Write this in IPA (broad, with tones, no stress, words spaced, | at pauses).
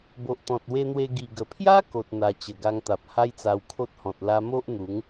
bo˨ʔt̪ɔ̃˨t̚ we˧n̪we˧ ɡi˨˩ɡə˨˩pʰja˦ ko˨t̚ n̪a˨˩ t͡ɕə˨˩ɡa˧ŋt̪a˨p̚ ha˦jt͡sa˧wkʰo˦t̚hɔ̃˨t̚ la˧mo˦ʔn̪u˨˦ŋ